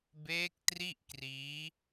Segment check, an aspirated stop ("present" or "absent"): absent